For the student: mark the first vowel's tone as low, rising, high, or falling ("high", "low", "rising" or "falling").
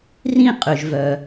falling